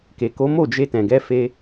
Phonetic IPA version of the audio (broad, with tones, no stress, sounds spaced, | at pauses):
k e˨ k o˨˦ m o˦˨ d͡ʒ e˧ t ɛ̃˨ ɡ ɛ˧ f e˧